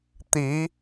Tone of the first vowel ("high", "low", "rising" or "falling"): rising